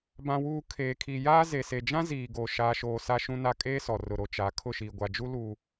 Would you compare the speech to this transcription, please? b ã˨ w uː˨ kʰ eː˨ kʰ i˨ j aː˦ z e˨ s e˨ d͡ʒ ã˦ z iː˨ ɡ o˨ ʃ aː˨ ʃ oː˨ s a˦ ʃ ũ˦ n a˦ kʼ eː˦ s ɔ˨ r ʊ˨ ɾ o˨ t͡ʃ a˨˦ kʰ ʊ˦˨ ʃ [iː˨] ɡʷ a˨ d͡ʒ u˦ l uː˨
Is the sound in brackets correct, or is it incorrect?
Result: correct